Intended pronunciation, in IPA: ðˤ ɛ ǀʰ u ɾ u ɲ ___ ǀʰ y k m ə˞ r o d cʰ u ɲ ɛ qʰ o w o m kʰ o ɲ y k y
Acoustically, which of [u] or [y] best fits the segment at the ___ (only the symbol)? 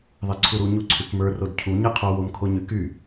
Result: u